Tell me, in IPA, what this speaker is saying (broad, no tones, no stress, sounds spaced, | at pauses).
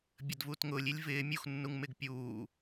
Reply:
bʲ ə d v uː t ŋ ʊː lʲ i lʲ v ɪː mʲ u x nː u ŋ m ɪ ɡ pʲ uː